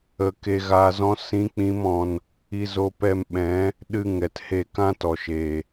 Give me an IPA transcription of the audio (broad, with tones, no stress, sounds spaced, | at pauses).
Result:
ə˧ k e˧ ɣ aː˧ z ɔ̃˦ s ĩ˦ k͡p ĩ˦ m ɔ̃˧ n | i˧ z o˧ p ɛ˧ m ɓ ɛ̃˨˦ | ɗ ɨ˧ ŋ ɛ˨ t h e˧ k ã˦ t ɔ˨ ʃ eː˨